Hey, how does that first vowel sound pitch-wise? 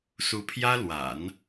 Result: rising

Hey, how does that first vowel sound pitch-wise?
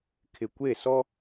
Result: low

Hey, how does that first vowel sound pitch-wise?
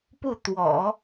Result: falling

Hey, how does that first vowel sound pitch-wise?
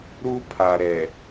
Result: high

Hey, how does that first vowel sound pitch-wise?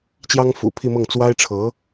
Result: high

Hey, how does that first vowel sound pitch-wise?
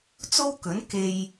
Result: high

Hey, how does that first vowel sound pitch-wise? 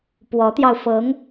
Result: rising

